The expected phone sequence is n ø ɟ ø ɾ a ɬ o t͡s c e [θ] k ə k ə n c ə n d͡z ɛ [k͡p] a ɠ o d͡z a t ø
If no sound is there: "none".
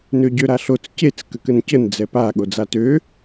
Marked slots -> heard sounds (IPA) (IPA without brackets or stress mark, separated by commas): t͡s, p